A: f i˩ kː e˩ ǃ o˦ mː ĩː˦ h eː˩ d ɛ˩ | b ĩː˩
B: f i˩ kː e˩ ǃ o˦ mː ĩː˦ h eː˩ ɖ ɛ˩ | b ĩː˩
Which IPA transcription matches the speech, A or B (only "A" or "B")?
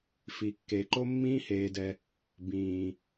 A